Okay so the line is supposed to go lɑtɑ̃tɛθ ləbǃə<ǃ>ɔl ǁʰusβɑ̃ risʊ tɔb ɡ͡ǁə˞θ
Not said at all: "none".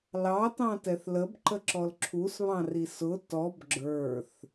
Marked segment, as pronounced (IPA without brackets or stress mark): ǁ